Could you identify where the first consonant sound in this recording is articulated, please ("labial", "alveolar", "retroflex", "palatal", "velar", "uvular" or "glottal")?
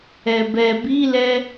labial